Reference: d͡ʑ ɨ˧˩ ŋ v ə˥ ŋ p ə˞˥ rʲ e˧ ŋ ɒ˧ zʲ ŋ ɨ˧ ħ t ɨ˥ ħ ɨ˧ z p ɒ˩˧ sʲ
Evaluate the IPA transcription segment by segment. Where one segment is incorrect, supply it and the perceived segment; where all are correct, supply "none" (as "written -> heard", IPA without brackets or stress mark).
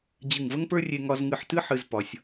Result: zʲ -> z